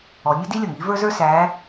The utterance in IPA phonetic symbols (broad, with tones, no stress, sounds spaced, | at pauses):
ɔ˩˧ nʲ ʊ˥ d i˥ lʲ ʌ˩ ŋ i˧˥ v ə˞˥ z ə˞˥ s æ˧˥